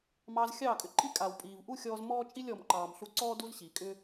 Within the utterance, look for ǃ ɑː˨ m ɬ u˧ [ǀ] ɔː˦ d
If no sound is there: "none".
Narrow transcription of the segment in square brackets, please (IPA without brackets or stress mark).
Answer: ǀ